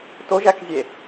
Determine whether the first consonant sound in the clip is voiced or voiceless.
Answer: voiceless